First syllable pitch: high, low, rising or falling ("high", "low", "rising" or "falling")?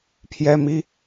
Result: high